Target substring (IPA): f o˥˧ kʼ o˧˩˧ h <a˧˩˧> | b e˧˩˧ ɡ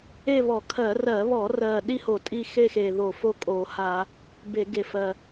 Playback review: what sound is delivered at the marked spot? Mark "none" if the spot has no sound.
a˧˩˧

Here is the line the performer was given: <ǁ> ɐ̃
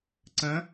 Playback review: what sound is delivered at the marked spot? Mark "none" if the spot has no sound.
ǀ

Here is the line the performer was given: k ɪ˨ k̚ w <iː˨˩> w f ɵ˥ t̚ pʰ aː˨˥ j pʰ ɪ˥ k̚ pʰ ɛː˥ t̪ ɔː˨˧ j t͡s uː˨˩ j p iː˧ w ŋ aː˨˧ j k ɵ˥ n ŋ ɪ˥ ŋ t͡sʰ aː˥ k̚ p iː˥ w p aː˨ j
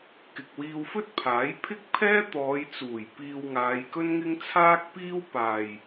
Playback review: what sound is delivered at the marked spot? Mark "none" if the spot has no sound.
iː˧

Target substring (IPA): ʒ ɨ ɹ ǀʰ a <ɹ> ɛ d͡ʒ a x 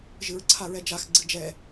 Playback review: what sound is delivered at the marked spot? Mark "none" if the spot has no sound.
ɹ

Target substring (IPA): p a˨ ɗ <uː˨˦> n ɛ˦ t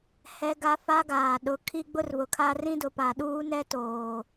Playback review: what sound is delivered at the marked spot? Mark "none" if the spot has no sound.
uː˦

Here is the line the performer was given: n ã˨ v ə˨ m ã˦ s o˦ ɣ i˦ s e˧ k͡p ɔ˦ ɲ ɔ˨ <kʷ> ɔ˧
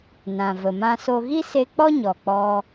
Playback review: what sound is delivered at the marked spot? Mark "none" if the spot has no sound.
k͡p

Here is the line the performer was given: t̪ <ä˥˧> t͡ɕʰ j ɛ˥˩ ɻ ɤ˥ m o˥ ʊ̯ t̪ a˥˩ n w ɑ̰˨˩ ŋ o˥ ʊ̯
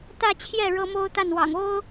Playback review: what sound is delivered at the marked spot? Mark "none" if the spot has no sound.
ä˥˧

